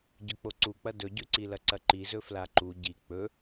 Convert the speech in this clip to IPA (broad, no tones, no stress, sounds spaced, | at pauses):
ɟ ɵ k͡p o ǀ u k͡p ɐ d ɵ ɟ ʉ ǀ i l ɐ ǀ ɐ ǃ i z ɵ f l a ǃ u ɟ i k͡p ɵ